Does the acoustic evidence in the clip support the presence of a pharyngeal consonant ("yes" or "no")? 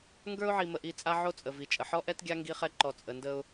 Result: yes